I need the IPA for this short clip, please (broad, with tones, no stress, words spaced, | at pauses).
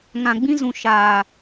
ŋã˨ɡ͡bĩ˦zũ˨ ʃaː˨